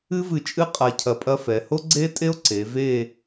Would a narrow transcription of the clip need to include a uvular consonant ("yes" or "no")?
yes